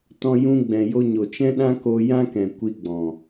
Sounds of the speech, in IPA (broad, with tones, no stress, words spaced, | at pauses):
tɔ̃˦ jũ˧ɡ͡bɛ̃˨ jo˧ɲo˨t͡ʃɛ̃˦ ɗã˦ko˧ jã˦kɛ̃˨ kʷi˧ɡ͡bɔ̃˨